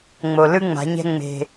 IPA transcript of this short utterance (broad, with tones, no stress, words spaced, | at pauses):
ŋ͡mo˨lɯ˦ ŋ͡ma̤˨˦ɲɛ̤˦ ŋ͡me̤˧